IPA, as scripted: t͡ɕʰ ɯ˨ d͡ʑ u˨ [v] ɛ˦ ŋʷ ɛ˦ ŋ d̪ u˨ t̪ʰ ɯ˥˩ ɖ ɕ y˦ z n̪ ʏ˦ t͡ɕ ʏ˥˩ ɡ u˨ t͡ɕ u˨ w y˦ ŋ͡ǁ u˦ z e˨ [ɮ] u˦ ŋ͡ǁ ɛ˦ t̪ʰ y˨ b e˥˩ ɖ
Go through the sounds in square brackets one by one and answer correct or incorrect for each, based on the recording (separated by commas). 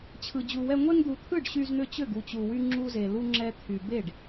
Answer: incorrect, incorrect